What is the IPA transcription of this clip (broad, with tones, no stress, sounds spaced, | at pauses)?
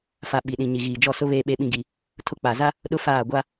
f a˨ ɓ i˨ ɗ ĩ˨ ɲ i˨ ɣ iː˨ d͡ʒ ɔ˦˨ s ʊ˦ β eː˦ ɓ e˦ ɓ ĩ˦ ɡ i˦ | tʰ ʊ˦˨ k͡p a˨ z a˦ | ɗ ʊ˦ f aː˦˨ ɡʷ a˦